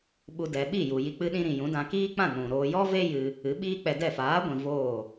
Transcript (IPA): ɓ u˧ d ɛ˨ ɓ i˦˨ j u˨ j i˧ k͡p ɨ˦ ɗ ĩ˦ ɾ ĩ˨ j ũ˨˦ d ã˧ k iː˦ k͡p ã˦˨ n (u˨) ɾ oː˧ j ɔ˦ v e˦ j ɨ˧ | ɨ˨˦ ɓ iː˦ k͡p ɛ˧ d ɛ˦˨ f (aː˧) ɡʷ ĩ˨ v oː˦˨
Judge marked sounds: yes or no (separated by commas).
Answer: no, no